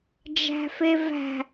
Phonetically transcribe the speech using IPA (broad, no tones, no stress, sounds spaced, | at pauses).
d͡ʒ æ̤ f e v æ̤